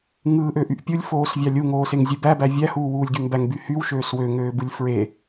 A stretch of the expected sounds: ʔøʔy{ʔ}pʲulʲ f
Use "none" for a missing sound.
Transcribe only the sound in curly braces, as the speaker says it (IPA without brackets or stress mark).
ʔ